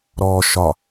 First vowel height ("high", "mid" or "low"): mid